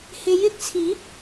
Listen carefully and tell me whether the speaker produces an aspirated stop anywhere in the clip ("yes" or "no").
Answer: yes